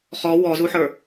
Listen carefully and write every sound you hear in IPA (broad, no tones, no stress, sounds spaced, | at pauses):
χ ɔ w ɔ z u ħ ə˞